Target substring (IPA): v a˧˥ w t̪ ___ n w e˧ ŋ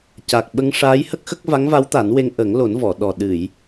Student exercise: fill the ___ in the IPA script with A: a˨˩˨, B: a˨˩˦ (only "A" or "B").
B